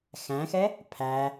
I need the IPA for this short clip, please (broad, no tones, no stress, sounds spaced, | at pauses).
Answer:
x æ̃ x ɛ | pʰ æ